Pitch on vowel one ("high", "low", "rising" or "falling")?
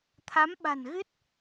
rising